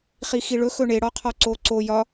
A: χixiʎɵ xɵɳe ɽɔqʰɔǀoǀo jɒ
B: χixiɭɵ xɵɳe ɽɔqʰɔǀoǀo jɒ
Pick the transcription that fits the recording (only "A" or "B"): B